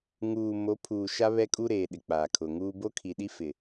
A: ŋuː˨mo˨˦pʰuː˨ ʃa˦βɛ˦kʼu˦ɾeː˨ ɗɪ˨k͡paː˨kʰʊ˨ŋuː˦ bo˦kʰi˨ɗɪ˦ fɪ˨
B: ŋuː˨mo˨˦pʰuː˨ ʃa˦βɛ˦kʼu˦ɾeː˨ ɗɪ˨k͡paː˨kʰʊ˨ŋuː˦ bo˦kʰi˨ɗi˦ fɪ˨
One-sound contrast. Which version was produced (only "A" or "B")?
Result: B